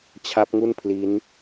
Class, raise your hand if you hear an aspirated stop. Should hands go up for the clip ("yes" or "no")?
yes